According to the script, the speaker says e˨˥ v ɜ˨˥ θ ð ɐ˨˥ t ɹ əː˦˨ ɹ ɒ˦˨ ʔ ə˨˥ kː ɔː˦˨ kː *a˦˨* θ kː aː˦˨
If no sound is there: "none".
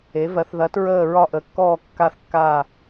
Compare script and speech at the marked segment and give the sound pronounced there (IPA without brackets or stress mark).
a˦˨